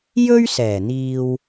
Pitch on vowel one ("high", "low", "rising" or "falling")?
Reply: high